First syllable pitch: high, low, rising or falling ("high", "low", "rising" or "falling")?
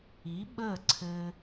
rising